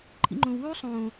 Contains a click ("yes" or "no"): yes